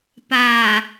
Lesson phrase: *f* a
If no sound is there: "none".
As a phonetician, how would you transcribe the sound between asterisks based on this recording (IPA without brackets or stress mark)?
p